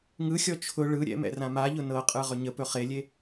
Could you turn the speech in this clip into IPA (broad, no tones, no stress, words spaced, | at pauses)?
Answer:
ŋɯxʲɔ t͡ʃʰʊ ɭɯ ɾʲɛ̰mɛ̰ rãmaʎʊ nɤqʼɯ ʁɵɲəpɵ χelʲe